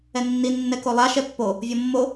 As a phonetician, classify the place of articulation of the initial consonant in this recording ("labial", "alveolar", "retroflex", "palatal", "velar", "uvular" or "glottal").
alveolar